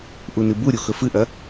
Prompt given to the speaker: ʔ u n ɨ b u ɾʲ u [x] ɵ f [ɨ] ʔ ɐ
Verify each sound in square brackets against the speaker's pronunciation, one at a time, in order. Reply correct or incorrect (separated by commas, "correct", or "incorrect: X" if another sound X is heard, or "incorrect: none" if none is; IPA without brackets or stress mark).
correct, correct